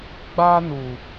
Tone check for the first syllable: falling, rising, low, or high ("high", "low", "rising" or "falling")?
high